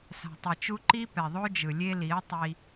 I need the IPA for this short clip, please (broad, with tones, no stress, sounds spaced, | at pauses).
s a̤˨ tˤ i˨ t͡ʃ u˦ ǃ i˦ p ɛ˨ ðˤ o˦ d͡ʒ ɯ˨ lʲ e˦ l i˨˦ ə̯ tˤ i˦